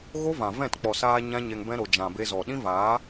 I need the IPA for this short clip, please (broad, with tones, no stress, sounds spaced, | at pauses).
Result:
ɣ o˦ v ã˨ v ɛ̃˦˨ t k͡p ɔ˨ s aː˧ ɲ ã˦ ɲ ɛ˧ ŋ b ɛ̃˦ ɾ o˨ d͡ʒ ã˨ b e˧ z ɔ˨ ɗ ĩ˦ v aː˨˦